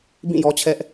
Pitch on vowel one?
falling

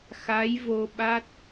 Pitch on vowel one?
rising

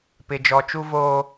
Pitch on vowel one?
low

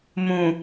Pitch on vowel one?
low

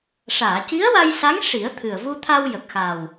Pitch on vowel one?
low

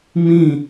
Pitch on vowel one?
falling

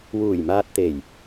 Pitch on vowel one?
low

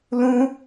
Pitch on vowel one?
high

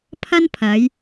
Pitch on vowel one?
high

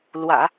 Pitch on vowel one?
low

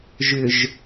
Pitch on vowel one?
low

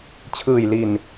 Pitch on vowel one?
low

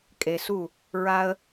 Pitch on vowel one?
low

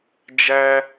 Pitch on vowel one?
high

